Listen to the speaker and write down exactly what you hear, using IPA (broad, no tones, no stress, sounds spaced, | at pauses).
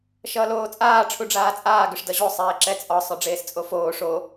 ʃ ʌː l oː t͡sʼ aː ʈ͡ʂʰ u ɖ͡ʐ aː t͡sʼ aː ɡ ʏ ʂ d ʌ ʑ o sˤ eː ǁ ɛ t͡sʼ ɒ sˤ œ ɖ͡ʐ eː s t͡sʼ o f oː ʂ o